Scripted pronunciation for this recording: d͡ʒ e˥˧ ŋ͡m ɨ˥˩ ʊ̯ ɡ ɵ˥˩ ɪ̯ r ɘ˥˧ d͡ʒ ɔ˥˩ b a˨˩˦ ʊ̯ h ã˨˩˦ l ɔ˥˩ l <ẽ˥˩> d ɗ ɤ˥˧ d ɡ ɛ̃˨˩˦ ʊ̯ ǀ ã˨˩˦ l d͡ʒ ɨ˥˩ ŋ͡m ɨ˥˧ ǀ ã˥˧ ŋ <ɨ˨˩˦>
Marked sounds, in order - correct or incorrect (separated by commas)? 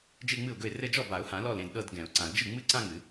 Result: correct, correct